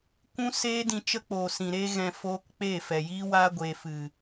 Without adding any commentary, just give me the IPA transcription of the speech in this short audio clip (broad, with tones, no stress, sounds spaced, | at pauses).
kʷ ũ˦ s eː˦ d ĩ˧ t͡ʃ ə˦ k͡p oː˨ s ĩ˨ ɾ eː˦ ɣ ɛ̃˧ f oː˧ k k͡p e˦˨ f ɛ˨ j iː˦ w aː˦ ɡʷ eː˨ f ɨ˨